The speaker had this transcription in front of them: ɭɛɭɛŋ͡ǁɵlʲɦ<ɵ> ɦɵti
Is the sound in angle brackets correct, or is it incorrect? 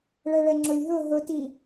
correct